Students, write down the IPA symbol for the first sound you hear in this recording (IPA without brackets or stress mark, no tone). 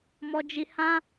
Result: m